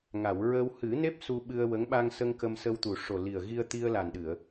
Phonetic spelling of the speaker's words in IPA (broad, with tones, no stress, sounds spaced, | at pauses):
ŋ a˨˩˨ w ɹ ə˧ w h ɨ˨˩˦ n e˦˥ p̚ s u˧ ɓ ɨ˧ ə̯ w ə˧˥ ŋ ɓ a˧ ŋ s ə˧ ŋ k ə˧ m s ə˧ w t̪ u˨˩ ʂ o˨˩ l i˨˩ ə̯ ɣ i˧ ə̯ t̪ i˧ ə̯ l a˨˩ n ɗ ɨ˨˩˨ ə̯